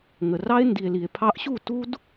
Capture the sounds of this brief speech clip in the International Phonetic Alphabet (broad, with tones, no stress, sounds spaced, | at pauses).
ŋ ə˨ r ɑ˦ e̯ n d i˨ e̯ l i˨ e̯ pʰ ɑ˧ ʔ ɕ u˦˨ t u˦ d